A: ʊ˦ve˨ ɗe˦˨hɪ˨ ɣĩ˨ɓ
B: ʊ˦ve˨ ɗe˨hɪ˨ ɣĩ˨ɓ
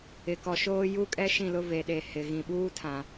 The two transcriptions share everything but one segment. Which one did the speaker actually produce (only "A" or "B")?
B